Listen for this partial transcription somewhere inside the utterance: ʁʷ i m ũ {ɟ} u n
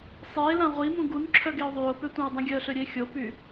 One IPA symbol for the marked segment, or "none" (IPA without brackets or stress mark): ɡ